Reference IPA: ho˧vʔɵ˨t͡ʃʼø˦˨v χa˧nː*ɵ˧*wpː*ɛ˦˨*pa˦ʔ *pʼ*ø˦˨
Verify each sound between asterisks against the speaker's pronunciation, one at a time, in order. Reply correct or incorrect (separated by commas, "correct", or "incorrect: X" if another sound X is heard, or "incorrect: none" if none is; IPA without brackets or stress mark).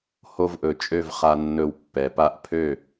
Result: correct, incorrect: ɛ˨, incorrect: pʰ